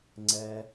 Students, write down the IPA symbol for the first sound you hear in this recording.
ŋ͡ǀ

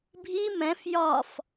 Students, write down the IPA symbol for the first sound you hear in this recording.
bʱ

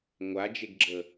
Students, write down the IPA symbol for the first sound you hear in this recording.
ŋʷ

